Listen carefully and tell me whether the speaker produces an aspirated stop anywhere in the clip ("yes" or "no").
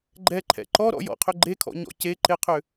yes